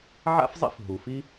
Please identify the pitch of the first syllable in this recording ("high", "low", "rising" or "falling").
high